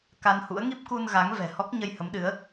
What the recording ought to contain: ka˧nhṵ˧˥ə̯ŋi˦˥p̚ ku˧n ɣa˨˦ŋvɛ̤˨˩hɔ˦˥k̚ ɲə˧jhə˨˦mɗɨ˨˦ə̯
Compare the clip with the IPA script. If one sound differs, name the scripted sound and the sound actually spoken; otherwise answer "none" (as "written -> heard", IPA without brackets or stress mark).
none